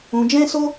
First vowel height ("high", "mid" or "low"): high